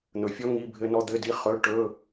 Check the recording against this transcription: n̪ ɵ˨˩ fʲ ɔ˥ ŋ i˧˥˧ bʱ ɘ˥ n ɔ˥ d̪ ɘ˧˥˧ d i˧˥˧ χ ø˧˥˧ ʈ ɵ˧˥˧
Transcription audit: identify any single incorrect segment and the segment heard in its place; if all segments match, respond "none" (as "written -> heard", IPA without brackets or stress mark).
ø˧˥˧ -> ɵ˧˥˧